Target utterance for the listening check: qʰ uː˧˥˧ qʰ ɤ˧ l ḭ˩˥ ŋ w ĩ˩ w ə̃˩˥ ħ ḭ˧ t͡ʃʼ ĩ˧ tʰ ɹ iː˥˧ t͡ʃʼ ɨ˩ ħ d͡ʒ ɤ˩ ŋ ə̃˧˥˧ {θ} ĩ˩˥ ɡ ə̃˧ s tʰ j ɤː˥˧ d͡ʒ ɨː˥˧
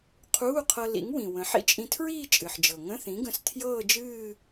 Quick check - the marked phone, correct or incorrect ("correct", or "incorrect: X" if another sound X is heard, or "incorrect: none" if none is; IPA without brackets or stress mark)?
correct